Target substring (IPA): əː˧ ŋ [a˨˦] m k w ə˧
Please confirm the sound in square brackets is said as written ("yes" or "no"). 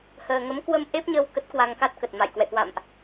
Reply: no